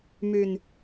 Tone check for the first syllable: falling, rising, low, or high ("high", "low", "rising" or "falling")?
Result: low